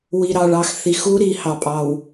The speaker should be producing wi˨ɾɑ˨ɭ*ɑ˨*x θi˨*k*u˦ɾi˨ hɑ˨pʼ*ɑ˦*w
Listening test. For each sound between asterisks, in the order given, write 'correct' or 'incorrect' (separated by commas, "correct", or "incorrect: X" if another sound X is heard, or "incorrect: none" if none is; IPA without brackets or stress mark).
correct, incorrect: x, incorrect: ɑ˨